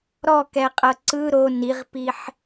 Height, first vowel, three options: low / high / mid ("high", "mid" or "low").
mid